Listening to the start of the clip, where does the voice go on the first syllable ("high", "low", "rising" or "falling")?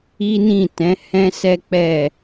high